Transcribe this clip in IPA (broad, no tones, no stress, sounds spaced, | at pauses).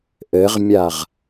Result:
ʔ ɘ ʁ mʲ a ʁ